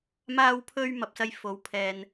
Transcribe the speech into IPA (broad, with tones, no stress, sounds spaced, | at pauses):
m aː˧ w pʰ ɵ˧ ɥ m ɐ˨ p̚ s ɐ˧ j f o˨˧ w pʰ ɛː˨ n